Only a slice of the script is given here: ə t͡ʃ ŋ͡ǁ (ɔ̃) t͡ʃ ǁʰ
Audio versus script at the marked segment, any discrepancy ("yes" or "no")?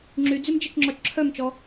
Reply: yes